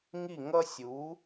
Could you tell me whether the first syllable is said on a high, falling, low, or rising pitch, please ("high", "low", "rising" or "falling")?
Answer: falling